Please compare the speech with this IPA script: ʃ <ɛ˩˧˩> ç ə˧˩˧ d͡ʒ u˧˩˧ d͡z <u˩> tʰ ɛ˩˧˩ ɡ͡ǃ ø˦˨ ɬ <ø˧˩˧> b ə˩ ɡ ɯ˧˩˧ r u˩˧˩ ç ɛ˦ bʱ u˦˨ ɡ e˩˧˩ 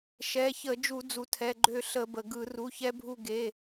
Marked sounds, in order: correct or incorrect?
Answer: correct, correct, incorrect

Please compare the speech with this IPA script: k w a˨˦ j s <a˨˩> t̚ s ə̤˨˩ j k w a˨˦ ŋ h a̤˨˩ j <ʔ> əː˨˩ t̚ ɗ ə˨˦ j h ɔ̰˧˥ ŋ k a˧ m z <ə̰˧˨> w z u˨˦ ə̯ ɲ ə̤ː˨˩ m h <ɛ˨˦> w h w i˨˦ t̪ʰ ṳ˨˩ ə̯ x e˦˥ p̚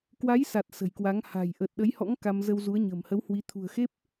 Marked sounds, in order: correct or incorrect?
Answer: correct, correct, incorrect, incorrect

